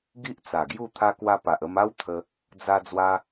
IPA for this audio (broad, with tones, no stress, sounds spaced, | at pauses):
ɡ i˦ ʔ t͡s a˨˩ ɡ j u˥˧ t̪ʰ a˧ k w a˧ p a˨ ʔ ə˧ m a˦ w t̪ʰ ə˧ | d͡z a˦ d͡z w a˧